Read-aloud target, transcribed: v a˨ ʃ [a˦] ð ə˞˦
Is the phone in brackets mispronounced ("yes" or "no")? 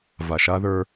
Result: no